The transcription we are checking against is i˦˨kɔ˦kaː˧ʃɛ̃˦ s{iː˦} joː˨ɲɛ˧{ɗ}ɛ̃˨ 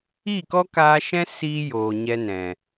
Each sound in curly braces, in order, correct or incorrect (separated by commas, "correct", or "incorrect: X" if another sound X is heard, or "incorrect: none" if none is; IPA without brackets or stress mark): incorrect: iː˧, incorrect: n